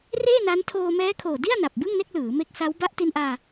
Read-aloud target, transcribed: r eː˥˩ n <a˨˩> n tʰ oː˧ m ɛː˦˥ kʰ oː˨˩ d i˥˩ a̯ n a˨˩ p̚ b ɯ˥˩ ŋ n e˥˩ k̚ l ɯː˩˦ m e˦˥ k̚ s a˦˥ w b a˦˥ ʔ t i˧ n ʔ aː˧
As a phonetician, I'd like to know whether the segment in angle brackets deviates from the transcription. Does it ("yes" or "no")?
yes